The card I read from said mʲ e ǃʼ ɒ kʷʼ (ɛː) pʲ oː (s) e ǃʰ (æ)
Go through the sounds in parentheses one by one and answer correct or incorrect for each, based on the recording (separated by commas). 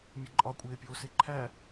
incorrect, correct, correct